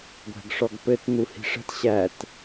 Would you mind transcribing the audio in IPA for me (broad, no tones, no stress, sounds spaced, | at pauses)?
ɡʷ æ̤ ɡ ʂ ɔ ɡ p ɘ t n̪ u h i̤ ʂ ə̤ t ɕ æ t